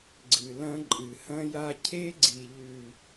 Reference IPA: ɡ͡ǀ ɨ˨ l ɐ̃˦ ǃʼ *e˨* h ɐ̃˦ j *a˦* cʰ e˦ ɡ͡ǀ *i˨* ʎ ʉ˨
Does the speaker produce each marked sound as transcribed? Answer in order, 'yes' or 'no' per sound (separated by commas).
no, yes, yes